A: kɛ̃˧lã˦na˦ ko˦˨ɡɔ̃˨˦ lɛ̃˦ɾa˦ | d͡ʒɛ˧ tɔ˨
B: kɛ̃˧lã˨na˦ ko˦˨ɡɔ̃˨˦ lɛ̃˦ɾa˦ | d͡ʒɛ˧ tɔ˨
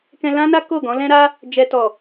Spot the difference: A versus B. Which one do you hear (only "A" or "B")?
A